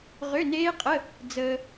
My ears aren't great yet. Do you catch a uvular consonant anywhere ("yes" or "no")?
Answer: yes